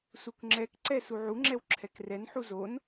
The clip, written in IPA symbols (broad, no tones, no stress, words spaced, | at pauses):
sukŋ͡ǁɛkǀɛ suʕuŋ͡ǁɛw ǁʰɛkrɛn ħuzon